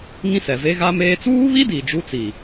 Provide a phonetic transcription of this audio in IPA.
ŋ ĩ˦ s ɛ˨ v e˦ ɣ a˦ m eː˦ t͡s uː˦ β i˦ d i˨ d͡ʒ u˦ t͡s i˨

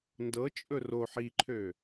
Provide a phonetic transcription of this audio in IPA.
n d ɤ t͡ʃʼ ɵ r o ħ i ǃʰ ø

